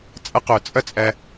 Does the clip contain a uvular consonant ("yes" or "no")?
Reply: yes